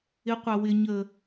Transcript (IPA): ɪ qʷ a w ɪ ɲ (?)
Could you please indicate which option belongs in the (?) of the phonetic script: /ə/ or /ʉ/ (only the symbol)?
ə